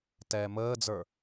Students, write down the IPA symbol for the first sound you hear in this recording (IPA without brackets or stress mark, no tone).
t